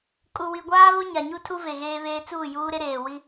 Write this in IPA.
kʼ u˨ w i˨ ɡʷ aː˦ β o˦ ɲ a˨ ɲ u˦ tʰ u˦ v e˨ ɣ eː˦ β eː˦ t͡s uː˦˨ j uː˦ ɾ e˦ ɾ eː˨ w i˦

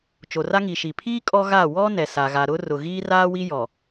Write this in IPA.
t͡ʃ o˨ r a˦ ŋ i˨ ʃ i˨ pʰ iː˦ kʼ ɔ˦ ɣ a˦˨ w ɔ˦ n ɛ˨ s a˨ ɣ a˨ ɾ ʊ˦ r ʊ˨ ɣ iː˦ r aː˦ w i˦ j ɔ˨

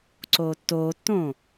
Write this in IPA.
ǀ oː tː oː tː õː

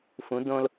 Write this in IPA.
f ũ˧˥ d õ˥ l

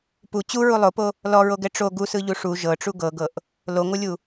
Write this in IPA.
p u t͡ɕ u ɹ u lˠ o p o | l ɔ ɹ o ɡ ɛ ʈ͡ʂ o ɡ u s ɯ ʎ u ʂ u ʒ ɤ ʈ͡ʂ u ɡ ɤ ɡ ɤ ʔ | l o ŋʷ ɯ lʲ u

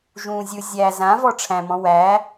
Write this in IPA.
ʒ ũː zʲ ɯ zʲ æ z ã v ɔ ʈ͡ʂʰ æ̃ m ɔ̃ w æ

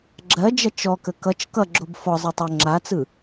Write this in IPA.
ɡ͡ǁ ɜ d͡ʒ ɐ t͡ʃ ɔ k ə k ʌ t͡ʃ k ʌ ɡ͡ǁ o b f ɔ zˤ ɯ tˤ o ŋ͡ǁ a t͡s ɯ

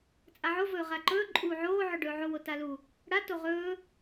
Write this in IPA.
t͡sʼ a ʕ o v ɵː ʁ a ǃ ɵː ǃʼ uː ʕ oː ʕ ɵ ɖ ɵː ʕ o w o t a l u | ɽ a t o ʁ ɵː

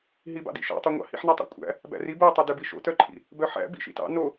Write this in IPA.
ɦ i b ɑ̰ d ḭ ʃ æ̰ tˤ ø ŋʷ ɑ̰ h ḭ ħ n æ tˤ æ̰ kʷʼ æ̰ | b æ̰ r i b o tˤ o d ø b i ʃ o̰ t œ ǃʼ ḭ | b œ ħ æ̰ b ḭ ʃ ḭ t ɑ̰ n o

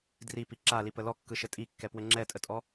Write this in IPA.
d r i p i ǁ a l i p ə l ɔ kː ɯ ʃ ɘ tʼ i kː ɛ p w ɘ ŋ͡ǁ ɛ tʼ ə tʼ ɔ

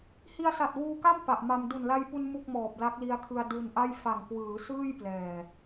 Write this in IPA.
h i˧ a̯ s a˨˩ t̚ w uː˧ k a˥˩ m p a˨˩ ʔ m a˧ m d u˨˩ n l a˧ j p u˧ n m u˥˩ k̚ m ɔː˨˩ p̚ l a˦˥ k̚ l i˦˥ a̯ kʰ ɯ˧ a̯ d u˧ n ʔ a˥˩ j f a˨˩ ŋ k w ɯː˩˦ s ɯː˥˩ j p l ɛː˨˩

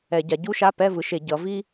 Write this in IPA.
ɛ˧˩˧ ɟ a˩˧ ɟ u˥ ʃ a˧˥˧ p ɛ˧˥˧ v ɯ˩˧ ʃ e˧˩˧ ɟ ʌ˩˧ v i˥

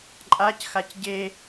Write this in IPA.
ǃʼ a c x a c ɟ e

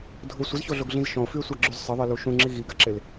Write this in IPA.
dʱ ʊ sʷ ɪ z ç o ɮ o ɡ ɮ ĩ z ʃ ɔ̃ o̯ f y e̯ sʷ a ɡ͡ǁ y z sˤ ɪ ðˤ i l u ʃ ũ ŋ͡ǁ i ɣ i ɡ a ǁ ɪ l

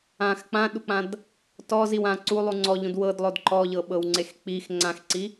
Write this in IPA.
ã x k͡p ã ɗ u k͡p ã d | t ɔ z i w ã ǀ u lˠ u ŋ͡ǀ ɔ ʎ ũ d w ɤ d lˠ o d ǃ ɔ ʎ ɤ ɓ ɤ w ŋ͡ǀ e x k͡p i x ŋ͡ǀ ã x ǀ i

